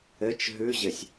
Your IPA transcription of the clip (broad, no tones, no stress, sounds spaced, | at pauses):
ɘ t͡ʃ ɦ ʉ ʑ ɘ sʲ